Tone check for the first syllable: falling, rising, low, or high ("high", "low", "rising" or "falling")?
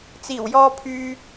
low